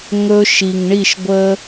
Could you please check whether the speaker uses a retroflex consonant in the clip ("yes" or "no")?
yes